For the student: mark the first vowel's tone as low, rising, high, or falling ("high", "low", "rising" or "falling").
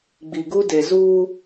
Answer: low